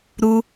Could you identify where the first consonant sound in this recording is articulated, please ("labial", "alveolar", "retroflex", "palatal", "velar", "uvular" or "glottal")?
alveolar